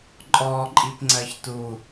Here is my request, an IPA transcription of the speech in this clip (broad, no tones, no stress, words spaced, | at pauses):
ǃʼɔǃʼipŋ͡ǀɜç tu